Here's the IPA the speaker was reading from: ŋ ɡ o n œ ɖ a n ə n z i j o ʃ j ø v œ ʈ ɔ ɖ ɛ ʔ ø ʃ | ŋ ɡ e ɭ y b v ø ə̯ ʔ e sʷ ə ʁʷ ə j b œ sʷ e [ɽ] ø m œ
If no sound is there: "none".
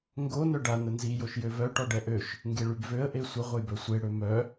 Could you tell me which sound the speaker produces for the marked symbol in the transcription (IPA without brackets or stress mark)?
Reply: ɽ